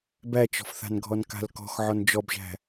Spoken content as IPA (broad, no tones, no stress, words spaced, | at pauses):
bæt͡ʃɔ̤fθa̤nɡʱɔn ka̤lkɔ̤x ʕɔnd͡ʒɔbʒæ̤